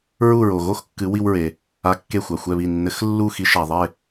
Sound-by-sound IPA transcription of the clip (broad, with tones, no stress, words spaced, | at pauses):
ɹu˥˨ ɹo˩ɣo˦x kːɨ˨˥wi˦wɹe˩ | a˨˥kːe˧˩xʷa˩ xʷɛ˧˩βi˧˩nːɘ˨˥x lːu˥˨xi˨˥ʃa˩ ðˤe˥˨